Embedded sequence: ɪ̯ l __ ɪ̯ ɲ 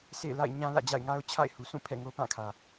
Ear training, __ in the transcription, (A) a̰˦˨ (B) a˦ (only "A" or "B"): A